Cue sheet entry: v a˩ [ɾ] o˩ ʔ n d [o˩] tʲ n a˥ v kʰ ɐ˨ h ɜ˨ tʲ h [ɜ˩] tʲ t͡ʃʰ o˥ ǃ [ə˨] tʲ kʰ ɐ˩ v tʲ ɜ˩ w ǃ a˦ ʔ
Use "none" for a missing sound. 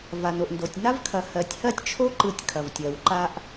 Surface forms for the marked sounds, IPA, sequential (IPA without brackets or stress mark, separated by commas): n, o˩, ɜ˥, ɯ˨